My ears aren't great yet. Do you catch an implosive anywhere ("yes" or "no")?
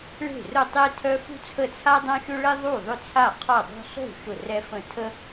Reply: no